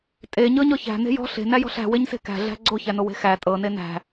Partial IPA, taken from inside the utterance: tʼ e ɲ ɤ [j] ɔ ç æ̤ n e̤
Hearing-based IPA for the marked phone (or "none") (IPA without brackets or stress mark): ɲ